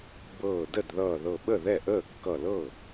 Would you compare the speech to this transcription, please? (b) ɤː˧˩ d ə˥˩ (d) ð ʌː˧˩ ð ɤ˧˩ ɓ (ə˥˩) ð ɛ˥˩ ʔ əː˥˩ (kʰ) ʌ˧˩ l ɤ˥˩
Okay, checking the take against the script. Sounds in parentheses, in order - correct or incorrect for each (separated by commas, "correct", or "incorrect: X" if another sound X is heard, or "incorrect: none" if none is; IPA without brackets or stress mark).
correct, correct, correct, incorrect: kː